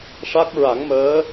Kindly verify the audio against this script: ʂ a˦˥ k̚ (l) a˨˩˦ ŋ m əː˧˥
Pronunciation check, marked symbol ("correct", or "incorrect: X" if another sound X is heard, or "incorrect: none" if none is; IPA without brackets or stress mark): incorrect: ɹ